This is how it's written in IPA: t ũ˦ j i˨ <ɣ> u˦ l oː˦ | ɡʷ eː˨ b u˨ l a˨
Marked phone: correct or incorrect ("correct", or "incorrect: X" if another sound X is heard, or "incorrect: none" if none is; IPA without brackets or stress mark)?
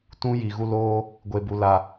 correct